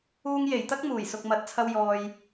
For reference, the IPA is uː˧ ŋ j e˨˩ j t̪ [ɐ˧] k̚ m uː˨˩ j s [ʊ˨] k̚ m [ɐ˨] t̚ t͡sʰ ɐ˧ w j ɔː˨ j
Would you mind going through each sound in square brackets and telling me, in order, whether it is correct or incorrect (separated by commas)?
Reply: incorrect, correct, incorrect